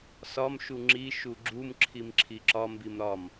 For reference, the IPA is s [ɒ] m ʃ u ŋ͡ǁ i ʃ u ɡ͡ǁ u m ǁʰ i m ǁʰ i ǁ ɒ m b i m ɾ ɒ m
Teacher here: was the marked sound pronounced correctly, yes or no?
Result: yes